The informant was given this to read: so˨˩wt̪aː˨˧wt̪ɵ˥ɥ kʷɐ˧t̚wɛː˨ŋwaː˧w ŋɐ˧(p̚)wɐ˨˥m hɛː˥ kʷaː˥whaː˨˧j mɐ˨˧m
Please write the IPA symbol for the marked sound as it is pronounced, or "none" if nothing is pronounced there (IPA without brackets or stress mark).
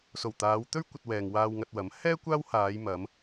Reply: t̚